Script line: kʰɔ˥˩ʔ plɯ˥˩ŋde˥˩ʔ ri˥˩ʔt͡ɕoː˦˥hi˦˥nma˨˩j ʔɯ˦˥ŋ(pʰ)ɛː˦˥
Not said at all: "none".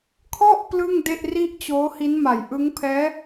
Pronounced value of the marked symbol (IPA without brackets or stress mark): pʰ